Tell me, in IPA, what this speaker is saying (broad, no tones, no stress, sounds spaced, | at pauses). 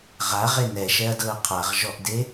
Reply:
ʁ a ʁ e n ɛ ʃ ɛ ɐ̯ d ɤ ɐ̯ qʰ a ʁ ʒ ɔ ʔ d e